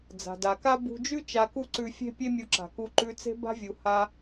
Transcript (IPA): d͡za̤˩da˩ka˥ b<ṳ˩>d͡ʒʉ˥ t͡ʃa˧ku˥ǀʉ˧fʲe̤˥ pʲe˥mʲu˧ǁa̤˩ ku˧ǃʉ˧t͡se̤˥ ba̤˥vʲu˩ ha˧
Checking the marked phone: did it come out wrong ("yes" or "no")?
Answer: yes